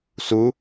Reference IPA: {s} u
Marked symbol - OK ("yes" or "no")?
yes